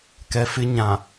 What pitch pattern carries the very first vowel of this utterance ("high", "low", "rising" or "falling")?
low